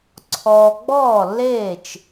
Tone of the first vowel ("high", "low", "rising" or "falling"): low